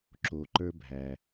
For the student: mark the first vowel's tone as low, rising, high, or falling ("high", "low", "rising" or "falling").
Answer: low